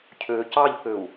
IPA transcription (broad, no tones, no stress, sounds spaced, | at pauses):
cʰ øː c ɑ ʎ k ø u̯